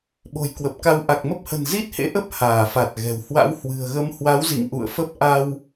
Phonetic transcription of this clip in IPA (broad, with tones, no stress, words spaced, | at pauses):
ɓo̤˨˩jkwə˨˩p̚ka˧w ʔa˨˩k̚mə˦˥p̚hə̤˨˩n zi˦˥t̚hḛ˧˥ʔə˦˥p̚ haː˧˩fa˨˩t̚ɣɛ̤˨˩w hwa̰˧˥whwɨ̤˨˩ə̯ɣə˧m hwa˨˦wzḭ˧˨ŋ ʔṵ˧˨ə̯fə˦˥p̚ ʔa˧w